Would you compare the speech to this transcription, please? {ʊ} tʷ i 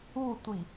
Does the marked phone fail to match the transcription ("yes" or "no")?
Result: yes